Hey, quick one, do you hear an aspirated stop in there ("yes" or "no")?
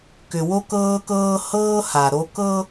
no